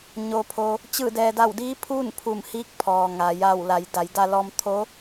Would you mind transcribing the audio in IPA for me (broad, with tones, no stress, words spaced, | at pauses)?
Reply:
ɲo˩pʰo˩ | t͡ɕɯː˧˩dɛː˩da˧˩wdiː˧˥ pʰuː˥˨npʰu˧˩mhiː˧˥k̚ pʰɔː˩ŋa˩ ja˧˩wla˩˧j da˩˧jda˧lɔː˧mt̪ʰo˧˥